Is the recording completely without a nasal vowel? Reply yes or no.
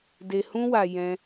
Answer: no